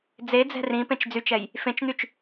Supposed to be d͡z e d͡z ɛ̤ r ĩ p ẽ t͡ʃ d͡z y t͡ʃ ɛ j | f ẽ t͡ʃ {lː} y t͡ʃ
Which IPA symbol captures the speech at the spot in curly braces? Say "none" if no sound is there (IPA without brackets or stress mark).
n̪